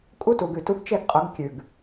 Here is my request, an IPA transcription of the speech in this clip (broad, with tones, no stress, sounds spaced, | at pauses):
kʼ u˦ t u˨ ɡ ʉ˨ t u˦ ɡ t͡ʃ e˦ ɡ qʼ ʊ˨˦ ɡ kʲ ʉ˨ ɡ